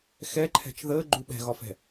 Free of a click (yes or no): no